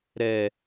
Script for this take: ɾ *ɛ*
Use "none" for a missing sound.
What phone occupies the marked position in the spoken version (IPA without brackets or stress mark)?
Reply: ɛ